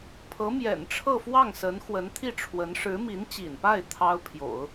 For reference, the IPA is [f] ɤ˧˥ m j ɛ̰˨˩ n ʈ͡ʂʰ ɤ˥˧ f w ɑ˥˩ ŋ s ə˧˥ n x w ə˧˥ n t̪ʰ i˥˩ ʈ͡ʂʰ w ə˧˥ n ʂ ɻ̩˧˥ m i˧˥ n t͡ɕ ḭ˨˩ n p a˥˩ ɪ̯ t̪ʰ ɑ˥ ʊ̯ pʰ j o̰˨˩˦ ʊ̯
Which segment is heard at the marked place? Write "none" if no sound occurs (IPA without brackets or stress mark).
pʰ